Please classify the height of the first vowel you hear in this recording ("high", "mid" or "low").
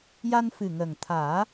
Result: low